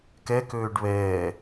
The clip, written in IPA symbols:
kɛkøːɖ βɛː

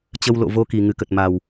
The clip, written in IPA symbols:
t͡ɕə˧wlo̰˧˨ vo˧ki˨˩ ŋɨ˨˩kə˨˩t̚ma˨˩w

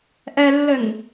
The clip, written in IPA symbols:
ʔɛlːɘn

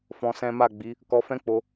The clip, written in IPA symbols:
fɔ̃˧sɛ̃˦ ma˦˨ɡ͡bi˨˦ | kɔ˧fɛ̃˦k͡po˧

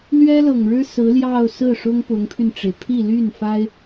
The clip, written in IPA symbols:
lɥɛ˥lɤ˨˩ŋɻɻ̩˥ sɹ̩˧˥ljɑ˥˧ʊ̯sɹ̩˥˩ʂʊ˥ŋ pʊ˧˥ŋpʰy˧nʈ͡ʂe˩ɪ̯ pʰi˥˧ly˥˩n fa˥ɪ̯

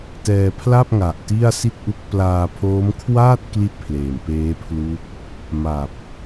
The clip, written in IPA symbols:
tɛː˧pʰla˥˩p̚ŋa˨˩ʔ ti˥˩a̯si˥˩t̚ʔu˦˥k̚ plaː˧pʰoː˦˥mkʰwaː˥˩t̚ kli˥˩t̚pʰleː˨˩mpeː˦˥pʰlu˦˥k̚ | ma˨˩p̚

